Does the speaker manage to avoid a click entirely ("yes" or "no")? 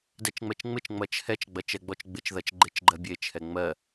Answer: no